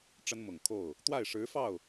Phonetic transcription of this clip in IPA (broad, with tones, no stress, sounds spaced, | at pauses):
ʈ͡ʂ ə˥ n m ʊ˨˩ ŋ kʰ o˥˩ ʊ̯ | t̪ w a˥˩ ɪ̯ ʂ ɻ̩˧˥ f ɑ˥˩ ʊ̯